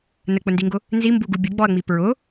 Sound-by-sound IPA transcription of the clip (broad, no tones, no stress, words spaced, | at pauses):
nək͡pʊndiŋɡʊ | nzimbuɡu bʲʊɡ͡bɔɐ̯ŋ͡mi pɹʊ